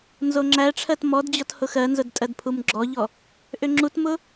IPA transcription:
n z o ŋ͡ǁ æ ʈ͡ʂʰ ɜ t m ɔ d d͡ʑ ɔ t h ʊ x ɜ n z ʊ d tʼ ɜ d pʰ u m ɡ͡ǁ ɔ ʎ ɔ | ʔ ʏ ŋ͡ǁ u t m ʊ

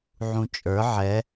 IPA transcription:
ʕ ũ t͡ʃʼ ə˞ ʕ ɛ

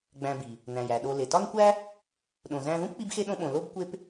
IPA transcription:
ɡ͡b æ̃˨ b i˩ | n æ̃˩ j æ˩ ɗ o˨ l e˩ t ɒ˦ n kʷ æ˦ | ɗ õ˨ z æ̃˦ ð ũ˥ p k͡p i˦ b x e˦ ɗ õ˦ ɓ õ˨ l o˥ b kʷ e˦ p

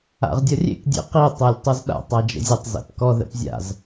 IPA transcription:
a̰ ʁ dʲ ʌ rʲ ḛ k dʲ ḛ q i tˤ ɛ lʲ tˤ ʊ z ɗ a̰ tˤ a d͡ʒ ə̰ zʲ ʌ tˤ z ɛ̰ p k ɔ ð ɛ̰ p zʲ a̰ z

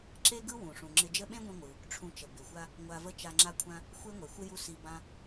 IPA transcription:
ǁ e˥ ɡ ɯ˥ w ũ˩ ʂ ũ˩ ŋ͡ǁ ɪ˧ d͡ʒ ə˥ ɓ ẽ˥ ɡʷ ĩ˧ ŋʷ ɯ˩ | ʈ͡ʂʰ ũ˧ t͡ʃ ə˩ b ɪ˩ xʷ a˥ | ŋʷ a˧ v ə˥ t͡ʃ a˧ ŋ͡ǁ a˥ kʷʰ ã˥ | xʷ e˥ ŋʷ e˩ xʷ ɪ˥ j u˥ s i˧ b ã˥

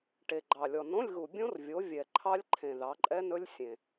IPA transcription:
ʈ e˨ ɡ͡ǃ ɑ˨ lʲ ɔ˨ n õ˧˥˧ lʲ ɣ u˨ bʲ õ˦˥ r vʲ o˨˥ vʲ ɛ˨ ǃʰ ɑ˦˥ lʲ ǃʰ ẽ˨ ð ɑ˨˥ ǃʼ ɛ˦˥ n ɵ˦˥ lʲ sʲ ẽ˨

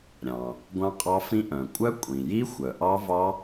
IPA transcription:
ɾʲ ɑ̃˩ | ɡʷ ɑ̃˦˥ qʼ ɑ˦˥ f ĩ˦˥ ʔ œ̃˩ kʷʼ œ˦˥ kʷʼ ĩ˩ j i˦˥ xʷ œ˩ ʔ ɑ˦˥ v ɑ˦˥

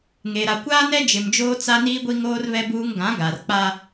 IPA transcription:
ŋ e˨ ɾ a˨ kʷ aː˦ n ɛ˦ d͡ʒ ɪ˨ m d͡ʒ oː˦ t͡s a˦ n iː˦ ɡʷ i˦ ŋ oː˦ r β ɛ˦ b uː˦ ŋ ɡ ã˨˦ ɡ a˨ r k͡p a˦

